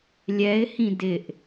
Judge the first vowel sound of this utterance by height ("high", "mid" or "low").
mid